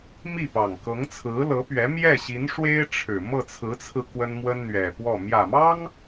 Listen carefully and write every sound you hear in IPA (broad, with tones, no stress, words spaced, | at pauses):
mi˥˩pɑ˨˩ŋ kɤ˧˥ŋt͡sʰɹ̩˧˥lɤ˧˥pɥɛ˧˥ mjɛ˥˩ɕi˧˥nʂwe˥ɪ̯ ʈ͡ʂʰɻ̩˨˩ mɤ˥˩t͡sʰɹ̩˧˥t͡sʰɹ̩˧ kwə˥nmwə˥nn̪ɥɛ˨˩pwɔ˥˩ mjä˨˩mɑ˥ŋ